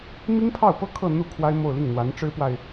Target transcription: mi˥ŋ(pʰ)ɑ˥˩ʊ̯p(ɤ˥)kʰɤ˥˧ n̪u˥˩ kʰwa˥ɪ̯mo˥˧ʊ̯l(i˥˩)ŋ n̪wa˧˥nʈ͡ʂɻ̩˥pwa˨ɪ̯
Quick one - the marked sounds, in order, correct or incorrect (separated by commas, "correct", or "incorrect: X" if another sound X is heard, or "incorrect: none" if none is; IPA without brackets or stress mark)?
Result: correct, correct, correct